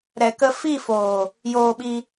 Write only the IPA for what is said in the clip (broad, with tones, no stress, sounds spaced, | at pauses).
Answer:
ɾ ɛ˨ k ə˧ f i˦˨ f oː˨ | j oː˧ ɓ i˧